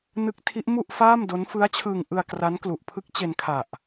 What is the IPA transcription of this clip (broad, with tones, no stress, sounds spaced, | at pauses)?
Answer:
n ɯ˦˥ k̚ tʰ i˦˥ ʔ m u˥˩ ʔ f aː˥˩ m d o˦˥ n f ɯ˦˥ a̯ t͡ɕʰ ɯː˧ ŋ ʔ ɯ˧ a̯ k r a˦˥ n k l u˨˩ ʔ pʰ ɯ˦˥ k̚ t͡ɕ e˧ n kʰ a˨˩ ʔ